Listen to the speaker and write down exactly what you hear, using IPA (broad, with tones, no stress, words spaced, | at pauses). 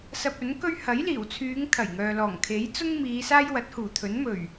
sɐ˧p̚ɵ˨˥nkɵ˥ɥ hɐ˨˥jliː˨˩wt͡sʰyː˨˧ŋ t̪ʰɐ˨˩jŋœː˨lɔː˨˩ŋ kʰe˨˥jt͡sʊ˥ŋmiː˨˧ saː˥jwɐ˨˥t̚huː˨˩t̪ʰɵ˨˥n mɵ˨˩ɥ